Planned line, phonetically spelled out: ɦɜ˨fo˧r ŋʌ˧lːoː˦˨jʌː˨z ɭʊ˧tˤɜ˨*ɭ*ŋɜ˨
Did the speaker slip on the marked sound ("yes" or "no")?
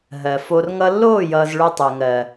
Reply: yes